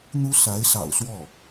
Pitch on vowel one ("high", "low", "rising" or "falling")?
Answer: high